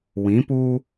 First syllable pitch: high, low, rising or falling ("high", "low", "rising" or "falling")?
rising